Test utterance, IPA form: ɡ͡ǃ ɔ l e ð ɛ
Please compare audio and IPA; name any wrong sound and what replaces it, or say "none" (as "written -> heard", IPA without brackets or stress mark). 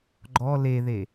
ɛ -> e